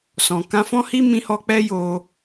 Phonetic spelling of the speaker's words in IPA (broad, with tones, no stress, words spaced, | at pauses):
sɔ̃˨ kã˧fɔ̃˦ hi˦ mĩ˧hɔ˧ k͡pɛ˦jo˧